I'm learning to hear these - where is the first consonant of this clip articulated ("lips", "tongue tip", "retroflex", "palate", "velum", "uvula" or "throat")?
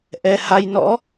throat